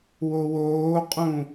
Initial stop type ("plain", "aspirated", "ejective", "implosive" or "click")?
ejective